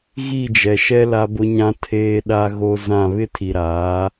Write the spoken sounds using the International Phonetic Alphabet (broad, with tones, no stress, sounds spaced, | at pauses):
ɣ i˦˨ d͡ʒ ɛ˨ ʃ ɛ˦ l a˦ b ʊ˦ ɲ ã˦ tʰ eː˦ ɗ a˦ ɣ o˦ z ã˦˨ β ɪ˦ tʰ i˨ ɾ aː˨˦